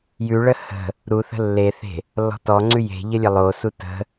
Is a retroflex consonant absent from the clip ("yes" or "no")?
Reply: no